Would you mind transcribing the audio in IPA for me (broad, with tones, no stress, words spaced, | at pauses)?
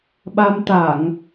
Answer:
ɓa˧mt̪a˧˩˨ŋ